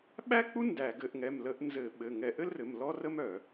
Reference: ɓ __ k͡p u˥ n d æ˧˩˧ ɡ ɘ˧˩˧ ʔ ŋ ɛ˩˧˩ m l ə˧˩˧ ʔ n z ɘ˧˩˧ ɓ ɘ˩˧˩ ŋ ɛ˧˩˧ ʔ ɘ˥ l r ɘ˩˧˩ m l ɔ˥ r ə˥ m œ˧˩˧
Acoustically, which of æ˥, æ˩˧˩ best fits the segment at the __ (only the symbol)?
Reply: æ˥